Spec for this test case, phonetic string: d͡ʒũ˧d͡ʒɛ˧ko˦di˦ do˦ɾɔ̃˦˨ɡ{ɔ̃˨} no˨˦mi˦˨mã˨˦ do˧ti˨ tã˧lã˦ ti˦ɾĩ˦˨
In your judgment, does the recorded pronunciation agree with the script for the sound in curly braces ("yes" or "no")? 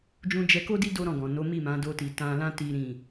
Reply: yes